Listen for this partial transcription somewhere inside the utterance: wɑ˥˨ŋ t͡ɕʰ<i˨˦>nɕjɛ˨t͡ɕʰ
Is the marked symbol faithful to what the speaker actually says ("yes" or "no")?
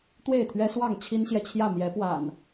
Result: no